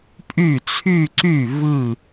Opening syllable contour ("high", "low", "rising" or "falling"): falling